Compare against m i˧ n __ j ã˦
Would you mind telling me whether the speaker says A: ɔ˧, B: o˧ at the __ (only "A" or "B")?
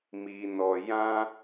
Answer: A